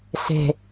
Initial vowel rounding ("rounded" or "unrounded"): unrounded